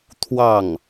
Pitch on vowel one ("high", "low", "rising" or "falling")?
falling